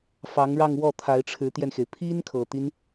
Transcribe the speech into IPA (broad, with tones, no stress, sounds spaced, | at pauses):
f ɑ˧˥ ŋ ɻ ɑ˥˧ ŋ w ɔ˥˩ t̪ʰ a˧˥ ɪ̯ ʈ͡ʂʰ ɻ̩˧˥ t̪ j ɛ˧ n x e˩ ɪ̯ pʰ i˥ n kʰ ɤ˨˩ t̪ i˦ n